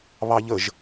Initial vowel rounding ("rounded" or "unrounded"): unrounded